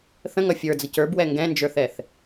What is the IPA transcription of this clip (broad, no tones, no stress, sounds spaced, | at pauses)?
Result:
θ ə̃ ŋ ʌ fʲ ə˞ d͡z ə c ə˞ b w ɛ ŋ ɡ ɛ̃ n d͡ʒ ə˞ θ ɛ θ